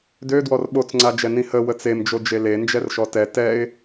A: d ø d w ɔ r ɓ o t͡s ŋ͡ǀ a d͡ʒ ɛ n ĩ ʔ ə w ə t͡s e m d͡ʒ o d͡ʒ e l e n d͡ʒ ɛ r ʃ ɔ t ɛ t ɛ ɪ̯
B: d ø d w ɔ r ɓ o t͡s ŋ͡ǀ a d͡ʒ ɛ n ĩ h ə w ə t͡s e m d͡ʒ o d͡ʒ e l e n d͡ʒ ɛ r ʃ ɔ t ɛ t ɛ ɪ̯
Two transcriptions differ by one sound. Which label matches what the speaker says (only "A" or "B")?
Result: B